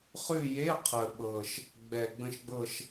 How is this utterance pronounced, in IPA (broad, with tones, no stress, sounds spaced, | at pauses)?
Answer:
χ ʉ˦˨ j e˧˥˧ qʰ ə˨˩ ɓ ɤ˨˩ ʃ | ɡ͡b ɛ˨˩ ɡ͡b ə̃˦˨ ʃ ɡ͡b ɤ˦˨ ʃ